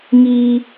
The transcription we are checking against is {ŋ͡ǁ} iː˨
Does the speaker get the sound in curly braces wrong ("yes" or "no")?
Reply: yes